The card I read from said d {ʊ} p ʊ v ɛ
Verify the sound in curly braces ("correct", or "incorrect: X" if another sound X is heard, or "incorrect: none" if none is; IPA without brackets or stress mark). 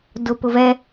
correct